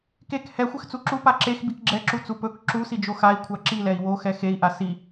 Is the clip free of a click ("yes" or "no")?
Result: no